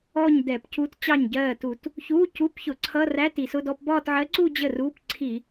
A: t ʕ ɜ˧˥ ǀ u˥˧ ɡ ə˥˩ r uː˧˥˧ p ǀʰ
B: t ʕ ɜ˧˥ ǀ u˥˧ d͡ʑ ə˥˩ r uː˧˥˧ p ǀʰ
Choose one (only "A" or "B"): B